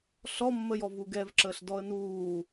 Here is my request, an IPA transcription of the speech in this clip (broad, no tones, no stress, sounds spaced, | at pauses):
ɬ ɔ mː ə j ɔ v u ɡ ɛ v ǁ əː ɬ d ɔ ə̯ n uː